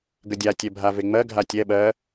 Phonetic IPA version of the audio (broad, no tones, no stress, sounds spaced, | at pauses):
ɡ ə dʲ a tʲ ɛ bʱ a v e ŋ͡m ɜ ɡʱ a tʲ ɛ ɓ ɜ